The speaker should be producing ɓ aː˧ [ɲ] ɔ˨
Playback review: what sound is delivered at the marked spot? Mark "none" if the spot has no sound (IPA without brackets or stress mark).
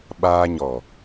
ɲ